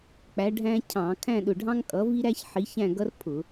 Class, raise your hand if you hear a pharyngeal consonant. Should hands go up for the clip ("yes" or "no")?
yes